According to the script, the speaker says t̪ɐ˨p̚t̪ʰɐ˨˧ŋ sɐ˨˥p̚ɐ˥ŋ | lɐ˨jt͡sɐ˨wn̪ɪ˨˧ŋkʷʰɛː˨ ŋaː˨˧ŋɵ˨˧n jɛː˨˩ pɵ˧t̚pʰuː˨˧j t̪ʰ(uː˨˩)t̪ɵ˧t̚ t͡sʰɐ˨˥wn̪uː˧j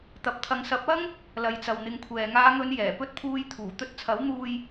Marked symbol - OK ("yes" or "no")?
yes